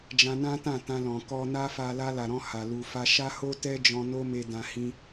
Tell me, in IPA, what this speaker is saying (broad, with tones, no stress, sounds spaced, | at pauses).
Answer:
d͡ʒ ã˧ n ã˦ t ã˦˨ t ã˧ l ɔ̃˨ k ɔ˧ n a˦ f a˧ l a˧ l a˨ ɾ ɔ̃˧ h a˨ l u˨ f a˧ ʃ a˦ h o˦ t ɛ˦ d͡ʒ ɔ̃˧ n o˦ m e˧ d ã˧ h ĩ˧